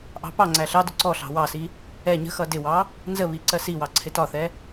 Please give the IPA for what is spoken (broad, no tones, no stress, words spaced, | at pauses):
ʔɑ̤pɑŋ͡ǀæ ɬɑdʊ ǀɔɬɑ̤ wɑsi | ɛ ɲə̤xʌ dɪwɑ | nzəβi ǀɜsiwɑ ǀʰɪtɒθɛ